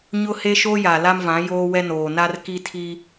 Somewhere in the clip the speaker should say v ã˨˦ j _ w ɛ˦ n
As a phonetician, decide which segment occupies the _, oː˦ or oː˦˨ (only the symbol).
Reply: oː˦